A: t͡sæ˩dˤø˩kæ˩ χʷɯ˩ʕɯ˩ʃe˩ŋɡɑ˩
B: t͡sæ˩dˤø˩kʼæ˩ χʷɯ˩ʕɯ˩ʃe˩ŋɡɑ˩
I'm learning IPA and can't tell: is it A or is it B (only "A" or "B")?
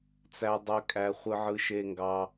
B